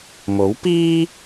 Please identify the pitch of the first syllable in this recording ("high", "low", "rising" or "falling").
rising